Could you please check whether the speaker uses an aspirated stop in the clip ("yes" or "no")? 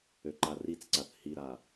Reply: no